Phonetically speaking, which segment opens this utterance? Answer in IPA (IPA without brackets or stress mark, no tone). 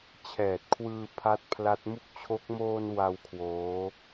t͡ɕʰ